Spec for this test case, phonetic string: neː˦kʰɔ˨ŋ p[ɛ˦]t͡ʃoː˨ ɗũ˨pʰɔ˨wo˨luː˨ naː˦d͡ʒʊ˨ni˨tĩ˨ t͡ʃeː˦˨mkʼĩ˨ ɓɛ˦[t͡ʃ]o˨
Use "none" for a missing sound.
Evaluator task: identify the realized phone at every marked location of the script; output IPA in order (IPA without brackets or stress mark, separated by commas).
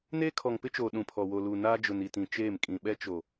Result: ɪ˦, t͡ʃ